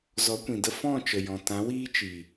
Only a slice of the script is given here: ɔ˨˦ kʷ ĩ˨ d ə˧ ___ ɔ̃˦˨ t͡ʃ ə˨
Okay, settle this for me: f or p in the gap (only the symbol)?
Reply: f